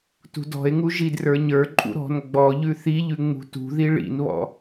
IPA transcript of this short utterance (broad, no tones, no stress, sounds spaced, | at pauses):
t ṳ d ɔ̤ e̯ ŋ u ʒ i d r ə˞ ɲ ə˞ ǃʼ ṵ ɾ ɔ̤ n ɡ͡b ɔ ʎ ʉ θ i ʎ ʉ ŋ͡m ṳ t ṳ ð i ɭ ḭ n β ɔ̰